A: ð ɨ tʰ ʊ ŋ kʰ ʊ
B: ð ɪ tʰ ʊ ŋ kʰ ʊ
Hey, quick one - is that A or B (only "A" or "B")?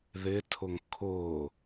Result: B